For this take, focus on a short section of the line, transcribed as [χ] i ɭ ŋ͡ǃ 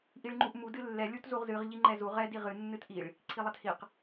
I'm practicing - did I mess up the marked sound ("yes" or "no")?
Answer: yes